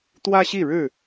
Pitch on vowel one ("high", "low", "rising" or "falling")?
high